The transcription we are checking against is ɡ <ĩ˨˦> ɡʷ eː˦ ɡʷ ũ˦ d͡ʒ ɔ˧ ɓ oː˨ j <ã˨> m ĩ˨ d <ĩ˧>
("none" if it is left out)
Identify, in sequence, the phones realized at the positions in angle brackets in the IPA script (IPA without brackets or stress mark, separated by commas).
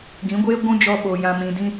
ĩ˨˦, ã˨, ĩ˧